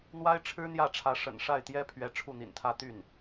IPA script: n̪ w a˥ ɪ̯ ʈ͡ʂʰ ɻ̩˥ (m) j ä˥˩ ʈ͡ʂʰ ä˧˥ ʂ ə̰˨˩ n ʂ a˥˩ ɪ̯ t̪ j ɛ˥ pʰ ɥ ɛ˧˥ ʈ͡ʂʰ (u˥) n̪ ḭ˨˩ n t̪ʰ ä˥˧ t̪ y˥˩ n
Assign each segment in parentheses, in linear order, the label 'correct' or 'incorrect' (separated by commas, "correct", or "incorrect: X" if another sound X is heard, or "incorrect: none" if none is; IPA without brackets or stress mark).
incorrect: n̪, incorrect: u˥˩